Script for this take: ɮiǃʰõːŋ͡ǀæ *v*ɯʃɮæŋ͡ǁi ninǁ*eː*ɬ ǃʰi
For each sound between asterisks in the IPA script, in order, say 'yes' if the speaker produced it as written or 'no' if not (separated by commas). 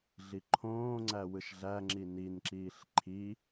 no, no